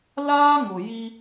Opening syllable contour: high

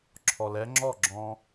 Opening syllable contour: low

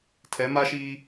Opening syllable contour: rising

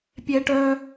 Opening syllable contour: high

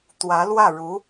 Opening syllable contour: rising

